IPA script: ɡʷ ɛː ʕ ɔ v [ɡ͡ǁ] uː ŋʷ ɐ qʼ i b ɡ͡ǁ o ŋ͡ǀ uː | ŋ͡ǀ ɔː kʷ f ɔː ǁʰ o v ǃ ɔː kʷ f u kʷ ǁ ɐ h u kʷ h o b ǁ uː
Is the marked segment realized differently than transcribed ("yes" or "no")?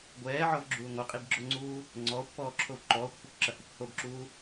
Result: no